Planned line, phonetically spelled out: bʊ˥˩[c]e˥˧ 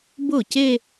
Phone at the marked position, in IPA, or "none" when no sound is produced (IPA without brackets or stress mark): c